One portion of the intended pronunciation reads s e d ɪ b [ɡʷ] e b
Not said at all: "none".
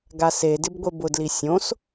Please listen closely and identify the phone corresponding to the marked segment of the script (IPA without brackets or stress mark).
ɡʷ